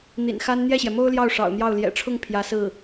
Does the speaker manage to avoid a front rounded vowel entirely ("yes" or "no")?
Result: yes